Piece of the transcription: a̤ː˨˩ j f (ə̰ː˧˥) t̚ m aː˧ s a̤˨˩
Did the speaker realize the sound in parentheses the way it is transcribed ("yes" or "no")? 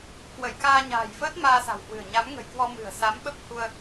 no